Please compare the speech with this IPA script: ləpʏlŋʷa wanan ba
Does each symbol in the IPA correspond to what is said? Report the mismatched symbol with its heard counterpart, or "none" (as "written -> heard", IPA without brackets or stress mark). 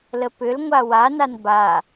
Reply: none